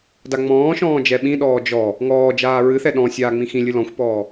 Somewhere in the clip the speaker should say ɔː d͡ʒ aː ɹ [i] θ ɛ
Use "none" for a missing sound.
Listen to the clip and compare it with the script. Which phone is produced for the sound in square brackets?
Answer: ɨ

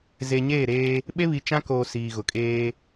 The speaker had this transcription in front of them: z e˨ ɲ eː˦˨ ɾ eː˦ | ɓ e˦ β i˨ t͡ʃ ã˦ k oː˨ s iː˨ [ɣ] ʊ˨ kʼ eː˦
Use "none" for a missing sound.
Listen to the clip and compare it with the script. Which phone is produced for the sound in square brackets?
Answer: ɣ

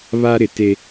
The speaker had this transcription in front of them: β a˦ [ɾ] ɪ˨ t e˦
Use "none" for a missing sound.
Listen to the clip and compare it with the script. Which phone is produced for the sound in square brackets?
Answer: ɾ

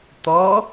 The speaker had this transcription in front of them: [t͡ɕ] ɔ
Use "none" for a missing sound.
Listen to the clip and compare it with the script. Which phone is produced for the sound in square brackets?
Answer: t̪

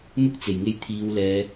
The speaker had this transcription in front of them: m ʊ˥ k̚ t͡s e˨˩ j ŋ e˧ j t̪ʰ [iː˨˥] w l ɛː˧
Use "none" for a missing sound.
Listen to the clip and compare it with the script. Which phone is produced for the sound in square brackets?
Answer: iː˨˧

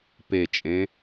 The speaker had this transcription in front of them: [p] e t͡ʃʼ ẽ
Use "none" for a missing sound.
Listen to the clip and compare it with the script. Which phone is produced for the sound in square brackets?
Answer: p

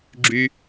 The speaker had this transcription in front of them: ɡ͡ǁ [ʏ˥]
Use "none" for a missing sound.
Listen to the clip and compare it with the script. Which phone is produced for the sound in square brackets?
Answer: y˥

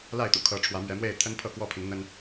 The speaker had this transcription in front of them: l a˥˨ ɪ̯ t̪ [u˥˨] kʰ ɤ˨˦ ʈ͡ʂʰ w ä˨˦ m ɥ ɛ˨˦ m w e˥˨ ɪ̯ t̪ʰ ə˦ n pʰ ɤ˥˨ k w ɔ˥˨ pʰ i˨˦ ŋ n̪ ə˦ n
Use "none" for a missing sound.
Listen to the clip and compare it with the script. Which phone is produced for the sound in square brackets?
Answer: ṵ˨˩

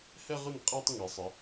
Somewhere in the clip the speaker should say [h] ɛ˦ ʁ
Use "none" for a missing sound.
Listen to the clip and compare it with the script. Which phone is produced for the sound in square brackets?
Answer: h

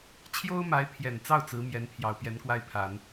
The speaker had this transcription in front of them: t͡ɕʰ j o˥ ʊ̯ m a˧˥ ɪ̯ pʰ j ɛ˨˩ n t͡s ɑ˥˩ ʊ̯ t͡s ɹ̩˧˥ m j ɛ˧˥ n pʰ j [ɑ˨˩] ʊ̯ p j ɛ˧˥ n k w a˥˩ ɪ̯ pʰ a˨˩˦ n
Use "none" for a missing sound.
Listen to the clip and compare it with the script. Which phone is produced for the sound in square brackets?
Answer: ɑ˨˩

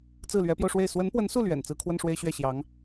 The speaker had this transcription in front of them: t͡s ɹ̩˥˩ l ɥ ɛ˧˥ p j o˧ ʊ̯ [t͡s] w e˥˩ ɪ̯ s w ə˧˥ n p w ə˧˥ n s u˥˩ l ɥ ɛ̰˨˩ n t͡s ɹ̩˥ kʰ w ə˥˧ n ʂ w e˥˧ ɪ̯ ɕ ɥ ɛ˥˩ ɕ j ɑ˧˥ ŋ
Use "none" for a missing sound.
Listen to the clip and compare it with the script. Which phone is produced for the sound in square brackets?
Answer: ʂ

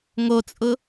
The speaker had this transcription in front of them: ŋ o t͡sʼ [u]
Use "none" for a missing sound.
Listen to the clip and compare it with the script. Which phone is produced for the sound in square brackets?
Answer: ʊ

